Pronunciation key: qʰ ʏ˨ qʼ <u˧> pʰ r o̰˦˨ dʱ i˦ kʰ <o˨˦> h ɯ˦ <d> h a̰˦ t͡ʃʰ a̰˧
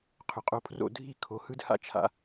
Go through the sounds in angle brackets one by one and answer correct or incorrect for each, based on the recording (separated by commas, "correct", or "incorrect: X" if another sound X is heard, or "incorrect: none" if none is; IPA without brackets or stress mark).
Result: incorrect: o˧, correct, correct